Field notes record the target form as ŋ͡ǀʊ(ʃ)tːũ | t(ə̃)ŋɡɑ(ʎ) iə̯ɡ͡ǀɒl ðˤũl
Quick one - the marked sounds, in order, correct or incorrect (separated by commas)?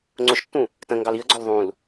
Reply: correct, correct, incorrect